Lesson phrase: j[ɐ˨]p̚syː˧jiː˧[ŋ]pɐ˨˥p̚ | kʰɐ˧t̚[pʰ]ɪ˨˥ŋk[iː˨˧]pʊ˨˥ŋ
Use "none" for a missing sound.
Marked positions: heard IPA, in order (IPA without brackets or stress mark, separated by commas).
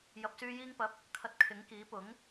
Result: ɐ˨, ŋ, kʰ, iː˨˥